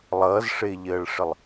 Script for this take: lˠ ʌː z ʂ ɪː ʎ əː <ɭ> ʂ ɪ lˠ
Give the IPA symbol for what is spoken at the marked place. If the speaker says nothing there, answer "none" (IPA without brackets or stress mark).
ɭ